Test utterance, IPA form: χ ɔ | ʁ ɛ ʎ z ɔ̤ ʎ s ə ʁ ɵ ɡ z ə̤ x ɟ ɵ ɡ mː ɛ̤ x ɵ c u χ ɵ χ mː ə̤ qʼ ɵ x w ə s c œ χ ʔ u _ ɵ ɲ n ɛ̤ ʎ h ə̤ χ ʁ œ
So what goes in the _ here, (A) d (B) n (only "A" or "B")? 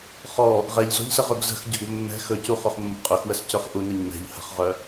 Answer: B